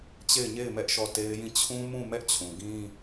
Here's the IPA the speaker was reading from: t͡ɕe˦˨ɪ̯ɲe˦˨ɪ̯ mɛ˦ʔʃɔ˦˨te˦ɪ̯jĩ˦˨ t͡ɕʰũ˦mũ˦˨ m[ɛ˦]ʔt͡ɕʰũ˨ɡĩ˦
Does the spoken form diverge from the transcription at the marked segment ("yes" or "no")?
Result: no